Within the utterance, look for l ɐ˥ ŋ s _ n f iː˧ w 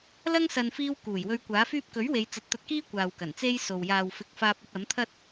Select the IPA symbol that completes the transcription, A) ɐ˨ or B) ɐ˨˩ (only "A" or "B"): A